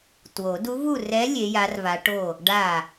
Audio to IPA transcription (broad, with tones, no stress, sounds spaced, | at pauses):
t w o˨˩˦ d u˧˥ v u˥˨ r ɛ˧˥ lʲ e˧˥ j a˧˥ r v a˧˥ ʈ o˥˨ | ɖ a˥˨